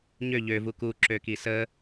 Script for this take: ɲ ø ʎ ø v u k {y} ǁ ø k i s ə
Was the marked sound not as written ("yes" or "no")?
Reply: yes